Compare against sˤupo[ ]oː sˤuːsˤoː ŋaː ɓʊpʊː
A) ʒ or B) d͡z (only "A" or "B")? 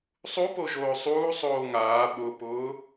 A